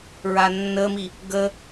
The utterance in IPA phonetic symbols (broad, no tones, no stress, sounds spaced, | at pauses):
ɹ a nː ə m i | ɡ ə